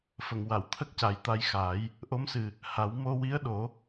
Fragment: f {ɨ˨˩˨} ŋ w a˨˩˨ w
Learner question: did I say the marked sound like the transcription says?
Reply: no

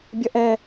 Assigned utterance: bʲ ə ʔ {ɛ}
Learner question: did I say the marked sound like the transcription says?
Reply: yes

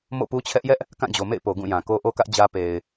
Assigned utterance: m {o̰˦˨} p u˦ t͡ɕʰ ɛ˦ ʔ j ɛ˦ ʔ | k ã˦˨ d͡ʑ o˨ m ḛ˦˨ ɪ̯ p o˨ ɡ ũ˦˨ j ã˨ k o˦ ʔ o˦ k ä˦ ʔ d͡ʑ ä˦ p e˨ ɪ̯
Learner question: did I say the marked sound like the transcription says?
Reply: yes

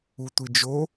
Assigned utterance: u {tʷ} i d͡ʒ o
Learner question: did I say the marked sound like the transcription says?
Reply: yes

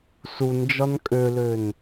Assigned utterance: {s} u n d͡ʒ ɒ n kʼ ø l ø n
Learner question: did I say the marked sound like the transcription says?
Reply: yes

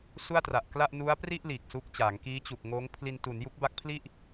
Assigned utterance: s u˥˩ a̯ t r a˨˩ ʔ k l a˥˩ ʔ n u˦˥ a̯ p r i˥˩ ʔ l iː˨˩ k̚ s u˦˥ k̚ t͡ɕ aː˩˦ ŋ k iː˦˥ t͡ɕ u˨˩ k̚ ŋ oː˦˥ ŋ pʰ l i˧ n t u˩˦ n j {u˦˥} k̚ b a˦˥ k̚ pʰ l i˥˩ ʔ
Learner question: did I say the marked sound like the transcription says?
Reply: yes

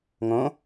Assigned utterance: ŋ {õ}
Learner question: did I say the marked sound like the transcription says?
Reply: yes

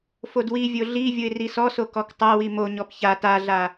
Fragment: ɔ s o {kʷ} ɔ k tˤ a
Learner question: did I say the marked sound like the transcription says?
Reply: no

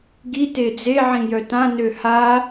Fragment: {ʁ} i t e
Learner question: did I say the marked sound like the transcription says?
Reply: no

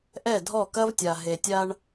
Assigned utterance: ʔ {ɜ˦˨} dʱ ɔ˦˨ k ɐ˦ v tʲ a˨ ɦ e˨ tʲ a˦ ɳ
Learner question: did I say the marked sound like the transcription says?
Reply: no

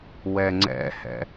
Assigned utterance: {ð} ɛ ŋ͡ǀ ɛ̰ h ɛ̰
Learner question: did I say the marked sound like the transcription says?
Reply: no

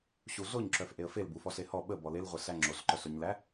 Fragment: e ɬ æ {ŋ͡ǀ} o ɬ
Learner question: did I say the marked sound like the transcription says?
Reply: no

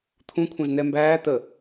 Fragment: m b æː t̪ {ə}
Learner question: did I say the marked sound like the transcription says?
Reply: yes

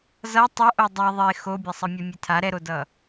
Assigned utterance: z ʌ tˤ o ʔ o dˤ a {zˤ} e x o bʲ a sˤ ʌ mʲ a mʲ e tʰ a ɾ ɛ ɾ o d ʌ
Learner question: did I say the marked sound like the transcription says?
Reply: no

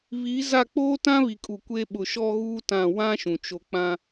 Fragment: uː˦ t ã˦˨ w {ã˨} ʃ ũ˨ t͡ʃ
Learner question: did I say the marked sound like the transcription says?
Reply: no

